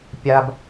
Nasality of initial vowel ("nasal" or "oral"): oral